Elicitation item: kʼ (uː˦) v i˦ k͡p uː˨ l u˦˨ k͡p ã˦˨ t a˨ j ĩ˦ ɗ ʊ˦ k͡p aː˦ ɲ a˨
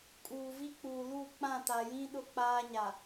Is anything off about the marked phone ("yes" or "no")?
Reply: yes